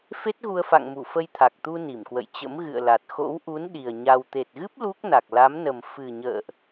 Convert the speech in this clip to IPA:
f e˦˥ t̚ ɣ u˧ ə̯ f a̰˧˨ ŋ m u˧˩ f ə˧ j t̪ʰ a˨˩ k̚ t̪ u˧ n i˧˩ m k w ə̰˧˨ j t͡ɕ ə̰˧˥ m ɣ ɨ̰˧˨ ə̯ l a˨˩ t̚ x o̰˧˥ w ʔ u˨˦ n ɗ i˨˩ ə̯ ɲ a˧ w t̪ e˨˩ t̚ ɣ ɨ˦˥ p̚ l u˦˥ k̚ n a˨˩ k̚ l a˨˦ m n ə˨˩ m f ɨ˨˩ ɲ ə̰ː˧˨ ʔ

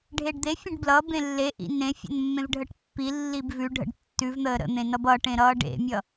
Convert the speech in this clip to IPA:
ɖʱ e ɖ d̪ e fʲ ə̃ ɖ b l ʌ b ẽ lː e ʔ ḭ n ẽ fʲ ə̰ n mː ẽ v ɖʱ ə ʈ pː i lː i b v ʉ ɖʱ ə̰ ɖ tː ʉ v n̪ əː ɾ ə̰ n̪ ẽ n ʌ b ʌ ʈ ẽ ɾ ʌː ɖ ḛ mʲ ʌ

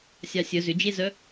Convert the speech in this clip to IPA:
sʲ ɑ sʲ œ z ʏ d͡ʒ e z œ

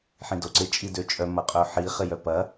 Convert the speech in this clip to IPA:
ħ ĩ d o ǀ ɪ t͡ʃʼ i d ø t͡ʃʼ œ m ɐ qʼ œ ħ i χ ɪ j œ p ɐ

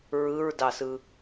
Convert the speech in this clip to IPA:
ɹ ɯ ɹ d ɑ s ɯ

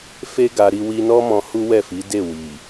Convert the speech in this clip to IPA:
f e˦ ɡ a˧ ɾ i˧ w i˧ n ɔ˦ m ɔ̃˧ h u˦ w ɛ˦˨ f i˨˦ d e˦˨ w i˨

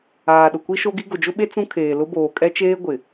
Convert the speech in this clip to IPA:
aː˨ ɗ ʊ˨ kʷ i˦ ʃ o˦ ɡ i˦ ɡ ʊ˨ d͡ʒ ʊ˦ ɓ e˦ t͡s ũ˦ kʰ eː˨ l ʊ˦ b oː˨ kʼ ɛ˦ t͡ʃ eː˦ ɡʷ ɪ˨

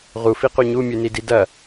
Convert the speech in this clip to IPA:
ʁ u f i q u ɲ u mʲ ʉ n i d i d ɐ

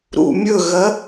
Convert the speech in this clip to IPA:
ɾ ṵ mʲ ɵ ɣ ɐ

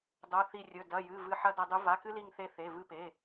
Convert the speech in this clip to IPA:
dˤ o˩˧˩ θ i˧˩ rʲ ɵ˩˧˩ d ɐ˩˧˩ j ɨ˩˧˩ v ɨ˧˩ ħ ɐ˧ d ɐ˧ dˤ u˧˥ v a˩˧˩ k ɨ˧ l i˧˩ ŋ θ e˧˩ θ e˩˧˩ v ɨ˧ p e˩˧˩

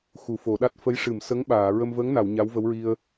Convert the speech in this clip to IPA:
x u˨˩˨ f o˨˩˨ ɗ a˦˥ t̚ f ə˧˥ j ʂ ɨ˨˩˨ m s ə˧˥ ŋ ɓ aː˨˩˨ ɹ ə˧ m v əː˧˥ ŋ n a˨˩˨ w ɲ a˧˥ w v ə˧˥ w ɹ i˧ ə̯

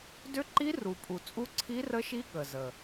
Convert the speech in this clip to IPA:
d ʏ˦˥ ǃ i˦˥ r u˨˩ pʼ u˨˩ t͡sʼ u˦˥ ǀʰ i˦˥ r ə˦˥ ʃ i˦˥ ɠ ə˨˩ z ə˨˩

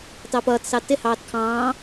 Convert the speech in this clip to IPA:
t ɑ p ʌː t s ɑ t ɪ h ɑː t kʰ ɑ̃ː

